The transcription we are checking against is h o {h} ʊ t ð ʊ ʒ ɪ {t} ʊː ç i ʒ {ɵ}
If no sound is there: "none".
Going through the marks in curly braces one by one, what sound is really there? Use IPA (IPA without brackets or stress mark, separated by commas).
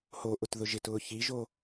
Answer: ʔ, t, o